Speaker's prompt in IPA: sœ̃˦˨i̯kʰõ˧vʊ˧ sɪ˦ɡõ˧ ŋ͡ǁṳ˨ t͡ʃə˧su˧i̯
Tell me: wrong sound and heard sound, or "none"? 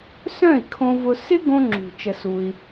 none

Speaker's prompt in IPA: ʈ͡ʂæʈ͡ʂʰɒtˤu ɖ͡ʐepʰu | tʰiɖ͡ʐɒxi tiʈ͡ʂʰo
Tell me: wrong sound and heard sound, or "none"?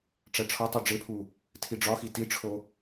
none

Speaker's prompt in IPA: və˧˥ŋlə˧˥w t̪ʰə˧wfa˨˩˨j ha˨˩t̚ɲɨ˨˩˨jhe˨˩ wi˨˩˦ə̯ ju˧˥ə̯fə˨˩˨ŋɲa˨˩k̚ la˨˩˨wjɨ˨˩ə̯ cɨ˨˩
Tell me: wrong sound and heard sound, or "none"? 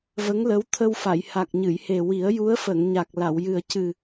t̚ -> k̚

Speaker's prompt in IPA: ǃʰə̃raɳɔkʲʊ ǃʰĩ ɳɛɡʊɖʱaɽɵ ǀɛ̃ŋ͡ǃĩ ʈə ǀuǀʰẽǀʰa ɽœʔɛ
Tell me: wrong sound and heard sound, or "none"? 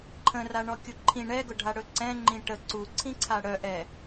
ẽ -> ĩ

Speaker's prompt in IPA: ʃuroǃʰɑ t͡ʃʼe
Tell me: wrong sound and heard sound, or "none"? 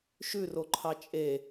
u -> ʉ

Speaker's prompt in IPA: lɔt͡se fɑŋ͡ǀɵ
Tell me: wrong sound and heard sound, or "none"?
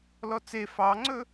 none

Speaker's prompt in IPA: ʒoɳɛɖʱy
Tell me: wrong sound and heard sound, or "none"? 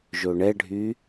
none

